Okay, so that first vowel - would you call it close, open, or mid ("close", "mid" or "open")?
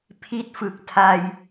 close